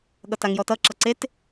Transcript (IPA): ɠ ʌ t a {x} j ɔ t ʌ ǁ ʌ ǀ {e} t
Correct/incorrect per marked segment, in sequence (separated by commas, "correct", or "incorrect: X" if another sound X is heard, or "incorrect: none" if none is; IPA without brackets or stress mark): incorrect: ŋ, correct